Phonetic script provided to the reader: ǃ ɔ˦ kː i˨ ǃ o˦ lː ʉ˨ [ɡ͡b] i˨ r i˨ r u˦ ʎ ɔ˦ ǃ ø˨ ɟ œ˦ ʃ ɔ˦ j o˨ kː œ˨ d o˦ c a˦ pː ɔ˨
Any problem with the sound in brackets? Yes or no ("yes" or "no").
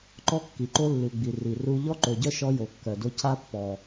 no